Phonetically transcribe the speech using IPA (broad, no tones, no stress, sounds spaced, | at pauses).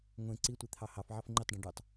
ŋʷ ẽ ǀ i tʷ i t̪ʰ ɑ h ɑ f ʕ ɑ f ŋ͡ǃ i tˤ ɖ ẽ ɖ ø tˤ